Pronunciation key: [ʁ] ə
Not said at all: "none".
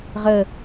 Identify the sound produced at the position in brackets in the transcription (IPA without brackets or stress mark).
ʁ